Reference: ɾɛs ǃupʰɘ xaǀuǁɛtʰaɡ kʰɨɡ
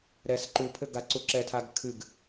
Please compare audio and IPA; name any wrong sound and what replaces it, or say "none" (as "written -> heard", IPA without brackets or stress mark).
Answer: x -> ɡ